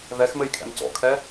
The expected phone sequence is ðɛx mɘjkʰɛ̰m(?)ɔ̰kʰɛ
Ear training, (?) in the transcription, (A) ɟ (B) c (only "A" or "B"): B